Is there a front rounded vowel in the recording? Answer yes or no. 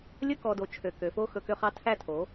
yes